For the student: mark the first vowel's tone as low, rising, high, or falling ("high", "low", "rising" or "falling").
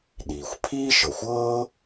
low